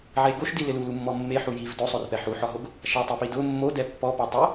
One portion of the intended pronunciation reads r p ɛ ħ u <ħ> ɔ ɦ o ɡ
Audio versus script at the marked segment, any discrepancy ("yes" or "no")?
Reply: no